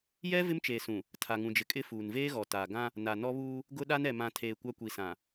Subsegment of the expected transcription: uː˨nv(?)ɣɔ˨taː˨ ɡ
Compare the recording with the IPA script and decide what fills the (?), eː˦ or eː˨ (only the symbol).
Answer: eː˦